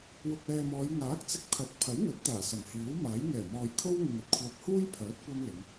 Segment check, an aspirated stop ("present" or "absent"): present